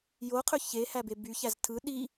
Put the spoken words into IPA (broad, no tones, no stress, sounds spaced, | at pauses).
j o qʰ ø ç e h æ b e b y ç æ z tʰ ɯ ɗ i